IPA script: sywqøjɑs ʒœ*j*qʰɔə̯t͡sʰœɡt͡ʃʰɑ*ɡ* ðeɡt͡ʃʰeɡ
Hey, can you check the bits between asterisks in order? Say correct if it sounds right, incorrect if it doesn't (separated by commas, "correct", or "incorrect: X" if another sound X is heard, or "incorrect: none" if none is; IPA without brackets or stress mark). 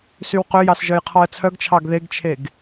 correct, correct